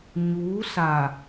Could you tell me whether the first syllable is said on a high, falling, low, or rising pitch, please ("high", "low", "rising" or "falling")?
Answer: rising